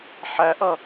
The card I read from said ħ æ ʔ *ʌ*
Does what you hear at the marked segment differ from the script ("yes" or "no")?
no